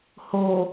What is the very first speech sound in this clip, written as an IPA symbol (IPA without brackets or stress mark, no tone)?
h